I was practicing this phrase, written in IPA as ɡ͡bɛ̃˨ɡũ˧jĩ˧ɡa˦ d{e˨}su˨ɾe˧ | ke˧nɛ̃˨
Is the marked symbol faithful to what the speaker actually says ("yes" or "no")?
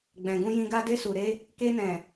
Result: no